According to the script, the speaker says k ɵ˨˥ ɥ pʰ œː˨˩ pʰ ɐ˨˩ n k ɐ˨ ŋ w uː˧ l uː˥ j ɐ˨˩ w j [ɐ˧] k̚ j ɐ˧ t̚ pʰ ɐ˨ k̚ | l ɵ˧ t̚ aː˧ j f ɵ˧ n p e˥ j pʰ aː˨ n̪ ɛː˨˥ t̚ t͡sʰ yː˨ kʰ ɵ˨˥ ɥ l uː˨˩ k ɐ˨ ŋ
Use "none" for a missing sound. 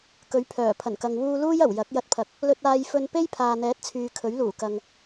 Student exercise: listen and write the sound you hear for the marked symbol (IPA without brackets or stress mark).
ɐ˨˥